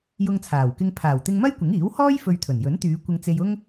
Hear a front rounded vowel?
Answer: yes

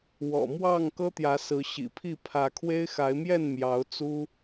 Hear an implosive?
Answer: no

